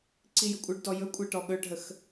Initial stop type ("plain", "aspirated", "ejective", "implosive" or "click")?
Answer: click